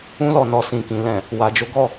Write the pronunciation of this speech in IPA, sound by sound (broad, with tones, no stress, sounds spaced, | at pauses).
ũ˦ l ɔ˦˨ n ɔ˧ s ĩ˨ k ĩ˨ l ɛ̃˨ | w a˨ d͡ʒ o˨˦ ɡ ɔ˧